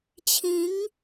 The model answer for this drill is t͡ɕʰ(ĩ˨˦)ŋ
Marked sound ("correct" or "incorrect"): correct